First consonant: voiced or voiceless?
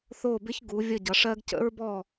voiceless